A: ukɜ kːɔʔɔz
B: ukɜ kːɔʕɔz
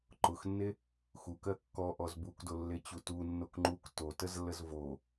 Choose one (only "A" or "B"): A